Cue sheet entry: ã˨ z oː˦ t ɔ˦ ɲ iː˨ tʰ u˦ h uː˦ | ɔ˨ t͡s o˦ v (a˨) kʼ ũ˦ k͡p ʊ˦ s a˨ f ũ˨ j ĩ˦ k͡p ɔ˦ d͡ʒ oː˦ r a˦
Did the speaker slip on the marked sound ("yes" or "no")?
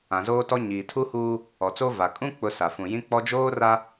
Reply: no